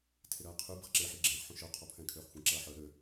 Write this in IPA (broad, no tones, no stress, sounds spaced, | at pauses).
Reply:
tʰ ɪ ɾ ɐː qʰ y b ɪ χ ǁ e ħ i ɡ͡ǁ ɛ̃ː χ ħ ũ ʃ œ qʰ ɔ pʰ ɛ̃ː kʰ øː χ xʷ ɛ̃ ǁ ɐː ħ œ ɾ ø